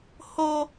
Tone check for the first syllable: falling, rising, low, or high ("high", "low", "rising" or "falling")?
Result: high